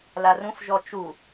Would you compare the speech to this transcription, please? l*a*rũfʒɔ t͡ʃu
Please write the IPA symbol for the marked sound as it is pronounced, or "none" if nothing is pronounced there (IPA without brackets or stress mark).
a